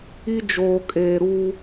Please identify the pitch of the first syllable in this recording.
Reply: high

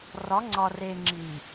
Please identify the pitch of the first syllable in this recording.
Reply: rising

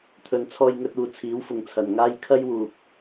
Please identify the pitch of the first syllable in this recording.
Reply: low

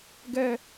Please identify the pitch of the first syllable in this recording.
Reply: high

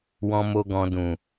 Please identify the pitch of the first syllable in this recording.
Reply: high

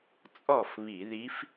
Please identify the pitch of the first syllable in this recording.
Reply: falling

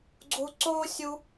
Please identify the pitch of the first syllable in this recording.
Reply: high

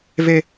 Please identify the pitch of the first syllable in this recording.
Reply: high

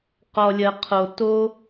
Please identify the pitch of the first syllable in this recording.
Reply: low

